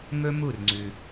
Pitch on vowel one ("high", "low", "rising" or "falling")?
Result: high